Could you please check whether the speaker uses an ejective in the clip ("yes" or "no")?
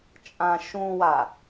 yes